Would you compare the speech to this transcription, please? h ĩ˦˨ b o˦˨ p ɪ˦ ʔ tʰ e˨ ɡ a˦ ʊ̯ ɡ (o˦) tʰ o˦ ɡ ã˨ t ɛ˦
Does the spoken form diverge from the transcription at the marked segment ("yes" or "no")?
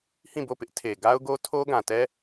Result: no